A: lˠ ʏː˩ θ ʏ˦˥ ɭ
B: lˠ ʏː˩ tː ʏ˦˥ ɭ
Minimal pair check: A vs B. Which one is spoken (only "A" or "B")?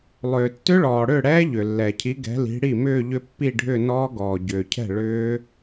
B